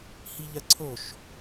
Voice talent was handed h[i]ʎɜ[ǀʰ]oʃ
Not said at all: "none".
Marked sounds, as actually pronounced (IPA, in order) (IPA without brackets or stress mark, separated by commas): i, ǀʰ